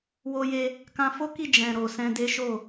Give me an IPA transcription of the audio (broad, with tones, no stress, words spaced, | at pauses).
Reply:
wo˧je˧ | kã˧fo˦ki˦˨ d͡ʒɛ̃˨ ɾo˨ sɛ̃˧de˦ ʃo˦˨